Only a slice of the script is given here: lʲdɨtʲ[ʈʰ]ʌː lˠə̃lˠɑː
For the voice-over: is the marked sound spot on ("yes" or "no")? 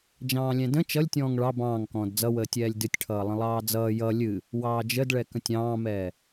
yes